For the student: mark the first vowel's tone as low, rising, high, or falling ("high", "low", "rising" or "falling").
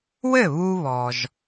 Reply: falling